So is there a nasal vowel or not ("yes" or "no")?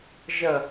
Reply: no